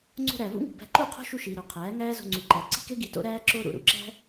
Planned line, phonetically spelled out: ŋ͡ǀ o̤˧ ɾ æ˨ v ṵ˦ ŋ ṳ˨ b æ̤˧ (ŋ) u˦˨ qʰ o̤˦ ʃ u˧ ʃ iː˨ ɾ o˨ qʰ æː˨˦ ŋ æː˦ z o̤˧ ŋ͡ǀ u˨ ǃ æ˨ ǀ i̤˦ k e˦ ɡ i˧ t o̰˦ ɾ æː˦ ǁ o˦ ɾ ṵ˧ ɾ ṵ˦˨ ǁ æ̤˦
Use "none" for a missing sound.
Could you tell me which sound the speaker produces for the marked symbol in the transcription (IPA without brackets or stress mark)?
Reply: ǃ